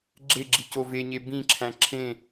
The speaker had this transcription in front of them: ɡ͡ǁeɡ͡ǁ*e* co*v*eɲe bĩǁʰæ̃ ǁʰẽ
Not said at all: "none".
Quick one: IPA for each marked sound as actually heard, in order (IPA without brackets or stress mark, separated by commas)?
i, v